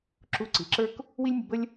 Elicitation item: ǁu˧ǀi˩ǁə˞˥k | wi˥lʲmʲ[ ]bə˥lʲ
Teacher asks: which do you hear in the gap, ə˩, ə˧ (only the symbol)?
ə˧